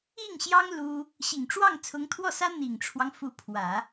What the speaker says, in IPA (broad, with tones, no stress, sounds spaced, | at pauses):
i˥˩ ŋ ɕ j ɑ˥ ŋ l u˥ | ɕ i˨˩ ŋ ʈ͡ʂ w ɑ˥˩ ŋ t͡sʰ ʊ˧˥ ŋ t̪ʰ w ɔ˥˩ s ä˥ n̪ i˨˩ ŋ ʈ͡ʂʰ w ɑ˦ ŋ f u˧˥ pʰ w ä˨˩˦